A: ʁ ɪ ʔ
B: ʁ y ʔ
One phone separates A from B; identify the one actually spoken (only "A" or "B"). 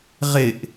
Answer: A